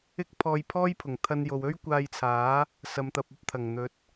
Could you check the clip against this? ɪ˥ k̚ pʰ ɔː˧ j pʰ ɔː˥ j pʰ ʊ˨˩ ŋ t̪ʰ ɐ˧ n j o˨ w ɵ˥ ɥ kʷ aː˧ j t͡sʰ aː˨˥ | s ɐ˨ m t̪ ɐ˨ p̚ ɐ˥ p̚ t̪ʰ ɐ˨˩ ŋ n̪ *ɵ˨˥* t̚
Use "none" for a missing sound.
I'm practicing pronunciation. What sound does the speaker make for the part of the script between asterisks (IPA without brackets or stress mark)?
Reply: ɵ˨˥